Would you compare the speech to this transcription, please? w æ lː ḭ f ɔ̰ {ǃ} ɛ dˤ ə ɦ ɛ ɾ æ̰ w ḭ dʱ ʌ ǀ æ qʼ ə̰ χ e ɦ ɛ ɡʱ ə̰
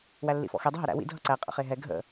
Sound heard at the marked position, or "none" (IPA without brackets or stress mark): x